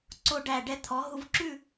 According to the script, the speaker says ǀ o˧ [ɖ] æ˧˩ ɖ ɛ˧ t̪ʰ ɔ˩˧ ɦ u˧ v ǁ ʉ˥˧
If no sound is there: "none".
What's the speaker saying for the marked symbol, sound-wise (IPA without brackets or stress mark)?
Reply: ɖ